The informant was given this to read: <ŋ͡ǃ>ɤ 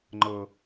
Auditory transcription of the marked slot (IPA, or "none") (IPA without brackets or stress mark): ŋ͡ǃ